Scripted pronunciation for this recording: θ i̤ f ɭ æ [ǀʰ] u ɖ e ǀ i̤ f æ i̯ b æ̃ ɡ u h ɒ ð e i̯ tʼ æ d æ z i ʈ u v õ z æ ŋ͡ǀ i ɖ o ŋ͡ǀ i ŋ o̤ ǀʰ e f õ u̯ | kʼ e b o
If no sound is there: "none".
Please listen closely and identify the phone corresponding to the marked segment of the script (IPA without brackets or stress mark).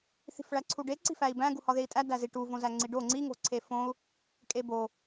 ǀʰ